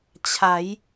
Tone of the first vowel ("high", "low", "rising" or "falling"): rising